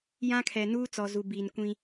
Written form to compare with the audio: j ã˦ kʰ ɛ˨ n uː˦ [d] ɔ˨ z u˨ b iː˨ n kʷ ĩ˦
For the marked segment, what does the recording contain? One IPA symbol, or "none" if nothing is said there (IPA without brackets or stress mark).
t͡s